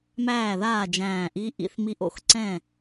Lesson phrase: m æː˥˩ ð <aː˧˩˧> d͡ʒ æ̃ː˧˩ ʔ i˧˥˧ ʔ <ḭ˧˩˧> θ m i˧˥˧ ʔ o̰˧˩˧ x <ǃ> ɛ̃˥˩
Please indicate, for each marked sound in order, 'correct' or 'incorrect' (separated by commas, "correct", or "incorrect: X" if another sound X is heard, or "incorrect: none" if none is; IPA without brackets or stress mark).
incorrect: aː˥˩, correct, incorrect: ǀ